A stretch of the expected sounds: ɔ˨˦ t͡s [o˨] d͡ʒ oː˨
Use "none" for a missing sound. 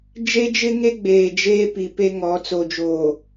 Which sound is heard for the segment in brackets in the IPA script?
o˨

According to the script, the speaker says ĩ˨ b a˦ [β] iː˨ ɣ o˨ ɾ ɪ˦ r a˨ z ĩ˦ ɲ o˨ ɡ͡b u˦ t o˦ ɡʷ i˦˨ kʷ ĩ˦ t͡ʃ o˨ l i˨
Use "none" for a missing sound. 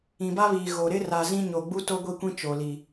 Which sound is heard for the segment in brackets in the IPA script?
β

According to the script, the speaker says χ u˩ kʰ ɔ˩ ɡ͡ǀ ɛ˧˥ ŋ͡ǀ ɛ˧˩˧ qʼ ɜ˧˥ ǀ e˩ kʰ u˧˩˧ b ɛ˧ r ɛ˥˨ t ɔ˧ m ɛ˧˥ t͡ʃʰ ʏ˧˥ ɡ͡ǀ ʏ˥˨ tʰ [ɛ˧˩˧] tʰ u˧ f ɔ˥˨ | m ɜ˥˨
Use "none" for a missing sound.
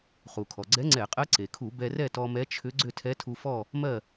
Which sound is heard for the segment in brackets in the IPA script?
ɛ˧˥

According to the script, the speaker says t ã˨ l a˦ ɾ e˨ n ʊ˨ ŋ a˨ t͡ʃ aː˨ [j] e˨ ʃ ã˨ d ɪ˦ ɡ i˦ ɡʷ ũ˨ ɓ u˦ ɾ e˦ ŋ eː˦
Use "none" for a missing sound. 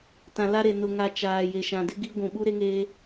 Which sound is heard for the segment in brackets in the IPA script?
j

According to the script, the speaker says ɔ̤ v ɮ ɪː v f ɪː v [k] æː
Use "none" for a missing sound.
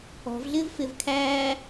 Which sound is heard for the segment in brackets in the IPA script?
kʰ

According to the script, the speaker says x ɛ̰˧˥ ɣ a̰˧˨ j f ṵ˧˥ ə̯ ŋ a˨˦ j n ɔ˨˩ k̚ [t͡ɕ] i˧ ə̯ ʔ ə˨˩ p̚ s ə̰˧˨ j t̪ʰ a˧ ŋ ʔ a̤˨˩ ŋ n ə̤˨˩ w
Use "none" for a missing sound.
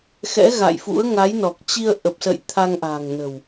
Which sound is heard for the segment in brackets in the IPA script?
t͡ɕ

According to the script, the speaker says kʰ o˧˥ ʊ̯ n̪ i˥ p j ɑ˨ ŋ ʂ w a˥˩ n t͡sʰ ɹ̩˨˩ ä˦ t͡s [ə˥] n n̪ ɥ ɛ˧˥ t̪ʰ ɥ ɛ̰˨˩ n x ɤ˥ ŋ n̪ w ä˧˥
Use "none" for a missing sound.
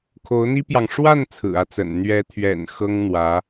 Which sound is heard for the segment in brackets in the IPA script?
ə̰˨˩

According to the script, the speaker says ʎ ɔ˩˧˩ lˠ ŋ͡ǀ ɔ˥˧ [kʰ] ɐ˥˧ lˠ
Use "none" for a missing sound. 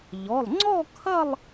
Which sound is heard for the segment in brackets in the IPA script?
kʰ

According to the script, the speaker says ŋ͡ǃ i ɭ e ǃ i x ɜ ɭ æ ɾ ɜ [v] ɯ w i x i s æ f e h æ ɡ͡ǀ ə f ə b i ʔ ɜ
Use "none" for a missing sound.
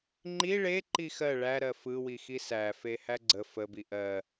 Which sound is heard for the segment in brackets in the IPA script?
f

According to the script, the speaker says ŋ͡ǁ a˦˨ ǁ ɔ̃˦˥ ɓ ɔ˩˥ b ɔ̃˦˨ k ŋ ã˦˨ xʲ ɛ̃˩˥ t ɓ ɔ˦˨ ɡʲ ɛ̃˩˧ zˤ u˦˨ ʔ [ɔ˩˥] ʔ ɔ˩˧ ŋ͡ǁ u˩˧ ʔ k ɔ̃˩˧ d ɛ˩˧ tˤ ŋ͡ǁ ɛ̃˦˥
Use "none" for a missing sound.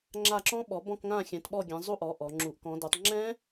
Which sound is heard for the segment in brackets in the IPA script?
ɔ˩˥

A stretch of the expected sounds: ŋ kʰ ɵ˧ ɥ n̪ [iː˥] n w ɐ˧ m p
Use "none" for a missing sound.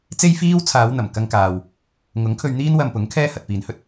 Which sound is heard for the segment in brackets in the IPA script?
iː˥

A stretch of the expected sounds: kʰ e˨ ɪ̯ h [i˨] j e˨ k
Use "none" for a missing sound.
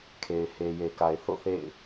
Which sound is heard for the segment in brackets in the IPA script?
e˨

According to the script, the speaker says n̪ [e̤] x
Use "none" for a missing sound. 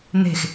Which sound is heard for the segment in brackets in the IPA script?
e̤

